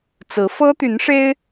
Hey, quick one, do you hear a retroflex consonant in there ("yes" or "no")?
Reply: yes